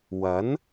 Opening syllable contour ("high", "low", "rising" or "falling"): rising